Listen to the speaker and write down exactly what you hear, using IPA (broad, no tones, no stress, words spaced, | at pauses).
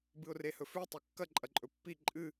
bɨʊ̯rehɵfʉ tˤʉkːɐ ǃʼɐǃʼɵpːi ǃʼɨ